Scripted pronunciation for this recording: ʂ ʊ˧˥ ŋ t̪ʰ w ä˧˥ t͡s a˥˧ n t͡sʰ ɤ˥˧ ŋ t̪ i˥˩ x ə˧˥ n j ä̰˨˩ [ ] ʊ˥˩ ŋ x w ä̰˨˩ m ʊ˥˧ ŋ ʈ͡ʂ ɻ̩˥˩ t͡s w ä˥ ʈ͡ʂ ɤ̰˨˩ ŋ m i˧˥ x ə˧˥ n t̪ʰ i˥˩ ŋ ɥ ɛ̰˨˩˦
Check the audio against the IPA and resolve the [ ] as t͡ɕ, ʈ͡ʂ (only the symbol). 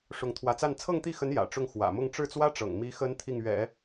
ʈ͡ʂ